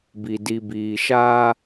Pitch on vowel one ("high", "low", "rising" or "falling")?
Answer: low